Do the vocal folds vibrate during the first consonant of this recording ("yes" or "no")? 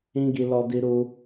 yes